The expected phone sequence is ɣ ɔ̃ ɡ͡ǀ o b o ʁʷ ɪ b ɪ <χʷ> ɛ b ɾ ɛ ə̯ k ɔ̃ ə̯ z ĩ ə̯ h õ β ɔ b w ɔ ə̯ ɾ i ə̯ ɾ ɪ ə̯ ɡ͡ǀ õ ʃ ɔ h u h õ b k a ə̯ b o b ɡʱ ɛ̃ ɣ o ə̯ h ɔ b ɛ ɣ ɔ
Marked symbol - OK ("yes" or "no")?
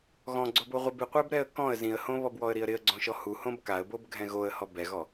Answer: no